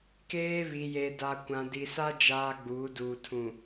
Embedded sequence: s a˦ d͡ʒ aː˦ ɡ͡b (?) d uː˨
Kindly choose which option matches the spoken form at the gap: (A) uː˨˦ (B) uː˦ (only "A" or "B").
A